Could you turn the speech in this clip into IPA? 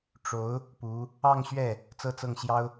ʈ͡ʂ o˧˥ ʊ̯ | p u˧˥ | ɑ˥˧ ŋ ɕ ɥ ɛ˥˩ | t͡s ɤ˥˧ t͡s ɤ˥˩ ŋ ɕ j ɑ˥ ʊ̯

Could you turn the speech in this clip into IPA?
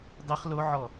dˤ i χ l o ʕ ɔ

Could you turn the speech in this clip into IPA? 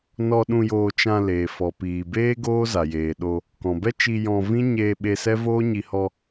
n ɔ˧ ɗ ũ˧ j oː˧ t͡ʃ ã˧ l eː˨ f ɔ˨ p iː˨ b eː˦ ɡ oː˦ z a˨ j eː˨ ɗ o˧ | k ɔ̃˨ b ɛ˦ t͡ʃ i˧ j ɔ̃˧ v ĩ˦ ɲ eː˧ ɓ e˧ s ɛ˦ v oː˦ ɲ i˧ h ɔ˧

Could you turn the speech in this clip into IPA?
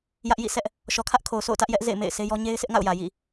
j ä˦ ʔ j ḭ˦˨ s ɛ˦ ʔ | ʃ ɔ˨ kʰ ä˦ ʔ kʰ o˨ ʊ̯ sʰ o̰˦˨ ʊ̯ t ä˦ ʔ j ɛ˦ ʔ z ḛ˦˨ ɪ̯ m ḛ˦˨ ɪ̯ sʰ e˦ j ɔ˦ ɲ e˦ ɪ̯ sʰ ɪ˦ ʔ ŋ a̰˦˨ ʊ̯ j ä˨ j ḭ˦˨

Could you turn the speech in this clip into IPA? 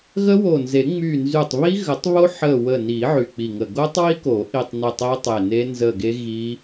ɣ ə˦˥ w o˧˩ n z e˨˩˦ ŋ͡m y˧˩ n z y˧˩ tˤ β i˦˥ ɣ ə˨˩˦ tˤ β o˦˥ ħ ə˧˩ w ə˧˩ n i˨˩˦ ʕ y˧˩ k͡p i˧˩ ŋ ə˧˩ ɡ o˦˥ tˤ w i˦˥ k o˨˩˦ ʔ i˧˩ tˤ n e˧˩ tˤ i˦˥ tˤ e˧˩ n e˦˥ n z ə˧˩ ɡ e˦˥ ɣ i˦˥

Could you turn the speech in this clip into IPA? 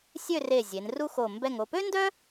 sʲ ø˥˧ r e˧˩ zʲ e˩˧ n r u˥ x o˧˩ m b ɛ˧˩ ŋ o˧˩ p ø˥ n d œ˥

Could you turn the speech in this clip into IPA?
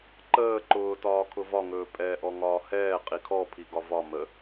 ǃ əː ǃ ʊː t ɒː kʰ ʊ v ɒ ŋ ɵː pʼ ɛː ʔ ɔ ŋ ɒː h ɛː qʼ i kʰ ɔ pʰ i ɡ ɒ v ɒ m ə

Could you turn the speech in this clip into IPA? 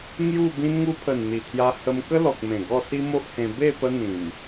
ŋ j u˥˧ b ĩ˧ n ŋ u˧ pʰ ə˨˩ n n̪ i˨˩ t̪ʰ j a˧ h ə˧ m k ə˦ l ɔ˨ k̚ m ẽ˨˩ ɡ ɔ˥˧ s i˦ m o˦ ʔ h ẽ˧ b e˥˧ p ə˦ n̪ ĩ˨˩ m

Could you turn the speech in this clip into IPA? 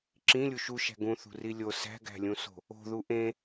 ǁ ĩ lʲ u ʃ u ʃ æ̤ ɡ ũ θ ṳ r i lʲ o s æ̤ ɡ æ̤ lʲ ũ s o̤ | o̤ ð u ʔ ẽ

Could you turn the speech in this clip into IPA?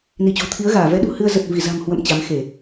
n i˧˩ t͡ɕ o̤˨˩ t̪ʰ i˨˦ ə̯ ɣ aː˧˩ v ɛ˨˦ ɗ ṳ˨˩ h ɨ˧ ə̯ z ə˨˩ t̚ v i˧˩ z a̤˨˩ m h w ə̰˧˨ m t͡ɕ a˨˦ m x e˧˩˨

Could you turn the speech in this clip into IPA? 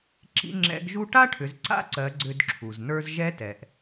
ǁ ḭ˧˥ ŋ͡ǁ ɛ̰˧˥ ɡ ʒ u˥ ʈ a˥ ʈʰ ʏ˩˧ z ǀ a̰˧˥ ǀ ɜ˩˧ ɡ͡ǀ ʏ˧ d ǁʰ u˩ z n ə˞˧ z ʒ ɛ˧˥ t ɛ˩ ʔ

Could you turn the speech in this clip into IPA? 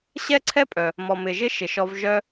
ɕ ɛ˥ ǀʰ ɛ˥ pʼ œ˩ | m ɔ˩ m ɪ˩ ʒ ɪ˥ ʃ ɪ˩ ʃ ɔ˧ v ʒ œ˧

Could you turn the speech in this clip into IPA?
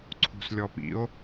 ǀʰ ṳ s lʲ ɔ p ḭ o̯

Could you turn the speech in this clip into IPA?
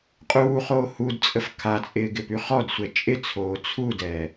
qʼ uː χ oː h u d t͡sʼ ə f kʰ a t͡sʼ ɪː ɡ ɪ p y χ ɔ d sʷ ɛ t͡ʃʼ ɪ t͡sʰ oː t͡sʰ u d ɛ

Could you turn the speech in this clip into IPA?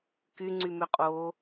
k y ŋ͡ǀ y m ʏ qʼ o

